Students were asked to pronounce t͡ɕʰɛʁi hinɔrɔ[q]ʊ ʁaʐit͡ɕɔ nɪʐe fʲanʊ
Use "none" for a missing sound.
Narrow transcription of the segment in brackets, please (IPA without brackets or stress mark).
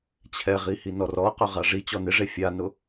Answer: q